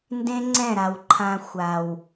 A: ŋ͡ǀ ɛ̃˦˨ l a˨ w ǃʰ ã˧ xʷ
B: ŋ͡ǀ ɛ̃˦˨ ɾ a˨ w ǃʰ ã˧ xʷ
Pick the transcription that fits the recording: B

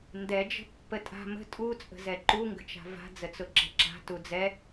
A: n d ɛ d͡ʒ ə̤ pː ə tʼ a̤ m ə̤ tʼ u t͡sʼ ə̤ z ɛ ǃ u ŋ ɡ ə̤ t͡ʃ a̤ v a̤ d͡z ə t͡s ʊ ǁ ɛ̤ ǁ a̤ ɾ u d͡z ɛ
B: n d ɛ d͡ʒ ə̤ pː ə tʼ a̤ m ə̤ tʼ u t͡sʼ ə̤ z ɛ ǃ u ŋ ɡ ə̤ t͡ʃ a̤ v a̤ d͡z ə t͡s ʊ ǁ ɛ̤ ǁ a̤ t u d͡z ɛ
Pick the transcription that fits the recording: B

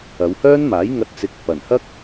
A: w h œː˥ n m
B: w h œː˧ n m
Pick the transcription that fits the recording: A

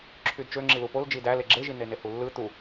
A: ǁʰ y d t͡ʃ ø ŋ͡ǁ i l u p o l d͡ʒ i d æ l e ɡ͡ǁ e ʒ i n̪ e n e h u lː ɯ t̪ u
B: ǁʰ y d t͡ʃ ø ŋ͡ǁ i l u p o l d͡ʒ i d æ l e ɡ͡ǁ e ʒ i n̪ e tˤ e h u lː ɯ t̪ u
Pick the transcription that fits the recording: A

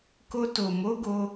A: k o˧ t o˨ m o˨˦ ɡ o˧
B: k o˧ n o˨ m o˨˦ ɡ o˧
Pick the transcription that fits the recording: A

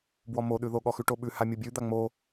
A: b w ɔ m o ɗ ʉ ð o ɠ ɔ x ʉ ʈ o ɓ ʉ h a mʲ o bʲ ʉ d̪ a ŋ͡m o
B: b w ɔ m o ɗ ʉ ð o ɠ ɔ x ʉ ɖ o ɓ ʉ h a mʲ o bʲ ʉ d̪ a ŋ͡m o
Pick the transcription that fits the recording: A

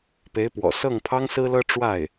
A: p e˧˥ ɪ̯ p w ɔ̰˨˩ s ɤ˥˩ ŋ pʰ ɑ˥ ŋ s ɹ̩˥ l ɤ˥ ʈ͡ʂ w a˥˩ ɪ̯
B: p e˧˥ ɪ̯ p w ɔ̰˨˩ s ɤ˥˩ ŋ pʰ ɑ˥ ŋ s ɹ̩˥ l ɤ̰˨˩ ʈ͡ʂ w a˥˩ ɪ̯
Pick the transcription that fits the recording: A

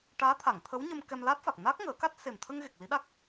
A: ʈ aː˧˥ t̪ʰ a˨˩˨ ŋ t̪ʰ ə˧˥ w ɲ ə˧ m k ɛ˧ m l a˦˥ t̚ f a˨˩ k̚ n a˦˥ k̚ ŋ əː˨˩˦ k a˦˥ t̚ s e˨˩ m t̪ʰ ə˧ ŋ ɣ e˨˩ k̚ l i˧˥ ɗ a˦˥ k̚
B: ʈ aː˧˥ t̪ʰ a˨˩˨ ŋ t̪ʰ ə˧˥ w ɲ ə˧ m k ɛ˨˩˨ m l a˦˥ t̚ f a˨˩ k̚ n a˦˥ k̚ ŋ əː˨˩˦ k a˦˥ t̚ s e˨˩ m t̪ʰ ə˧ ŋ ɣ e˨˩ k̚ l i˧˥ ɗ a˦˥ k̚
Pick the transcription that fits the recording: A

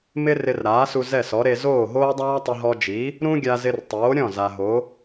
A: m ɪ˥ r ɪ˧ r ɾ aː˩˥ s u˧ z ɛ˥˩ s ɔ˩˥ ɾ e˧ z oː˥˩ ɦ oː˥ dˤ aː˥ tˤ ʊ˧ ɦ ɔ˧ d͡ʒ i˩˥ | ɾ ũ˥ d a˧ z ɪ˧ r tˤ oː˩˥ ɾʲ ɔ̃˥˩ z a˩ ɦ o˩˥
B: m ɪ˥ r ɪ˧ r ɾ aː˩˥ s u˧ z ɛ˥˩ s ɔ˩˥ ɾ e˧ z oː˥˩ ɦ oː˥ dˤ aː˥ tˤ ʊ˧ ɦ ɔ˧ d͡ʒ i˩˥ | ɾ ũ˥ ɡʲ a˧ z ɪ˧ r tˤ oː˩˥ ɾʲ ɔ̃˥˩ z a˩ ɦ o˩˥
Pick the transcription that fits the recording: B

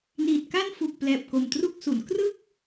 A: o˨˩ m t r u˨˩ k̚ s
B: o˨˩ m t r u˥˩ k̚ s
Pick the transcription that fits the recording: B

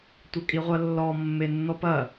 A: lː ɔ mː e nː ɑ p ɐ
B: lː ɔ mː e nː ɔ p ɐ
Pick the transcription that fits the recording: B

